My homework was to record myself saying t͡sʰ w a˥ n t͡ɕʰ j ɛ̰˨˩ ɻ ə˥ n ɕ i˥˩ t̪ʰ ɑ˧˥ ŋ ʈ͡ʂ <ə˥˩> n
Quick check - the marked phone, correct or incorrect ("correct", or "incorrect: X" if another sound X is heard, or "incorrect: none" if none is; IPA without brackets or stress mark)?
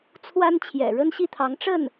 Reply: correct